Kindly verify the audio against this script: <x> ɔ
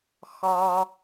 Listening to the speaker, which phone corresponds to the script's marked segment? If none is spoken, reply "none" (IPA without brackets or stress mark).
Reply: x